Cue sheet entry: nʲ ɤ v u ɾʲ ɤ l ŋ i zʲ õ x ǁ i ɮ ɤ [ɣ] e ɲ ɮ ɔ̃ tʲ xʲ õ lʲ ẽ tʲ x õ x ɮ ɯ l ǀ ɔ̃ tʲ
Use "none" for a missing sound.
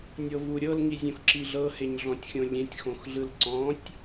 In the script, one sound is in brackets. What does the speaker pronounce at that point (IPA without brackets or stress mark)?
h